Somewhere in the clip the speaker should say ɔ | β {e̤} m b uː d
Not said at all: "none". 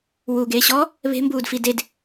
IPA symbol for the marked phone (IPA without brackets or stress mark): e̤